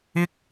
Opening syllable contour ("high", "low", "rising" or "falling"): high